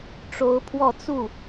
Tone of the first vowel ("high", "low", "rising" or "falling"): rising